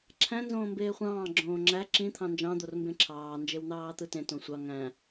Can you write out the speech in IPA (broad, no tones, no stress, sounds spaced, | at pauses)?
ǁʰ æ̃ n z õː m b eː χʷ ɑ̃ː ɡ͡ǁ õː ŋ͡ǁ æ ǁ ĩ t̪ʰ ɑ̃ n d͡ʒ ɑ̃ d̪ o r m b ẽ ǁʰ ɑː n d͡ʒ e w n̪ ɑː t̪ ɯ t ẽ t õ sʷ ɑ ŋ æ̃